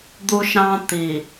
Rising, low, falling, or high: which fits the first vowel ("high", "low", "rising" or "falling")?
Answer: high